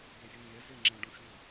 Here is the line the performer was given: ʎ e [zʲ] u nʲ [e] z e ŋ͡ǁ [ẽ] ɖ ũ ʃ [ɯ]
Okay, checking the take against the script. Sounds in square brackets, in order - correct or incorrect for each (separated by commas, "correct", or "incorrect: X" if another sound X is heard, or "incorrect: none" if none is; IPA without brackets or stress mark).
correct, incorrect: ɛ, correct, incorrect: u